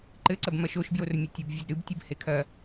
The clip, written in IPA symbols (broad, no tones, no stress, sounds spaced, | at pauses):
ǃ ɘ ǀ ɐ b m ɐ ʃ o ʃ b j o r mʲ ɐ tʲ o b vʲ ɔ d ɾ ɨ b tʲ ɨ b h e kʰ ɐ